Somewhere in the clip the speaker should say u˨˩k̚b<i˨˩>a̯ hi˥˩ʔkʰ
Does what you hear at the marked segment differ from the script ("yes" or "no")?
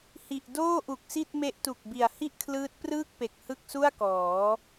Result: no